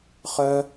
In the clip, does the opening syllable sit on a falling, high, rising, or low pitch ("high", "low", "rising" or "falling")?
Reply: high